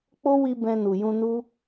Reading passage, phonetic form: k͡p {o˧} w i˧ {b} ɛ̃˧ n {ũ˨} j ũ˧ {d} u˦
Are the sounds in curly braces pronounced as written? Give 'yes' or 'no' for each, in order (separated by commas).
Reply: no, yes, no, no